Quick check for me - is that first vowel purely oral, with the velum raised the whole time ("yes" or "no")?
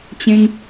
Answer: no